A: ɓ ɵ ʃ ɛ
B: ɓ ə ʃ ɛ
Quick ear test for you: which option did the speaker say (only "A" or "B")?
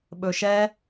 A